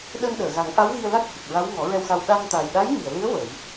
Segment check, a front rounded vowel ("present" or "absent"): absent